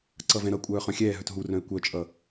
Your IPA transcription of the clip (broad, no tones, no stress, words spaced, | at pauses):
ǀʌvɛ̃ɾʌkʷʼœː χœ̃xʲɛːɦœt ɦurœ̃ɪ̯ kʷœt͡ʃʼʌ